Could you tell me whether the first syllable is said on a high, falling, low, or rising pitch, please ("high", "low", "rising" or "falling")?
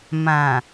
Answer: low